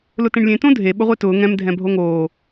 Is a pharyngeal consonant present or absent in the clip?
absent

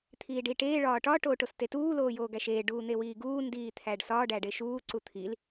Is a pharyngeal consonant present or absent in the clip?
absent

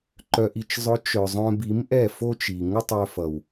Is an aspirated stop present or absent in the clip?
absent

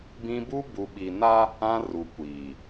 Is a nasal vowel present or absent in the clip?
present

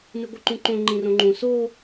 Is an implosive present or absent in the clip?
absent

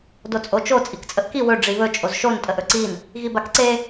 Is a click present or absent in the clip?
present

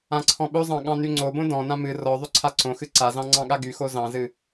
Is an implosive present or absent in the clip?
present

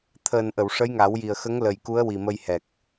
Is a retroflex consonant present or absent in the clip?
present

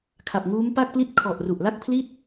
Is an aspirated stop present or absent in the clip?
present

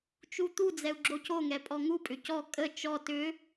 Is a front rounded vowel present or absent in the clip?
present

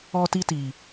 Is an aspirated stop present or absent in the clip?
absent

